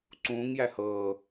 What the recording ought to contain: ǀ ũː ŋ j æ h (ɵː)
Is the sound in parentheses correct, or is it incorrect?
incorrect